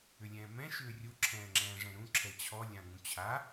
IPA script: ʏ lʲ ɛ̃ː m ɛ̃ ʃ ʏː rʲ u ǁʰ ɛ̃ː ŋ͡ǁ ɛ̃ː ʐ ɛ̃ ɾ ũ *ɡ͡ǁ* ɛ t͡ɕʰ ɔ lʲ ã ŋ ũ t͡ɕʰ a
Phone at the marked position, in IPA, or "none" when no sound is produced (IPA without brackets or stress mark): ǁʰ